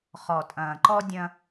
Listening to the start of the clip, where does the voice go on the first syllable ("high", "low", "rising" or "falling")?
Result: low